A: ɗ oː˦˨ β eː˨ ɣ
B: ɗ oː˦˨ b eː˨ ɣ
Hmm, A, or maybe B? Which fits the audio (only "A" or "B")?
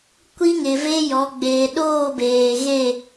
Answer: B